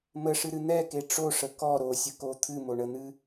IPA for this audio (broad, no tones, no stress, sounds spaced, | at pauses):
m ə ʂ ɨ ɾ ɨ n̪ ɛ k e ʈ͡ʂ o ʂ ə k ɔ ɾ o sʲ ə k o t̪ʰ ɨ m o ɳ ə n̪ ɨ